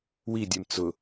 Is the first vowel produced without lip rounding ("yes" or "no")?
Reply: yes